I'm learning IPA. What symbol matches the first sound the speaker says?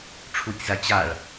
ʈ͡ʂʰ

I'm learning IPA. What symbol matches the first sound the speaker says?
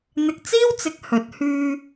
n̪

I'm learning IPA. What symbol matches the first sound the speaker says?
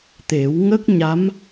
t̪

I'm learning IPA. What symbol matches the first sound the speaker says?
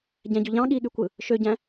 ɟ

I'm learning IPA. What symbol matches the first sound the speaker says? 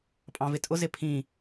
pʼ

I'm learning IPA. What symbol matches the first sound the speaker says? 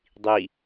dˤ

